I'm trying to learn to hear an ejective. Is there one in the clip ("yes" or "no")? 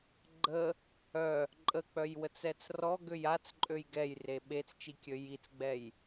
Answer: yes